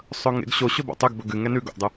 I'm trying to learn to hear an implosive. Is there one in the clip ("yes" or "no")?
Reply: no